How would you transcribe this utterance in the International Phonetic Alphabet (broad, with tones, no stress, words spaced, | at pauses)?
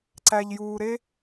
ǀæ˧ʎjuː˧ ɾe˦